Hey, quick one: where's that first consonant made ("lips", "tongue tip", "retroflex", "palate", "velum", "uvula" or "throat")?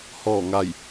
throat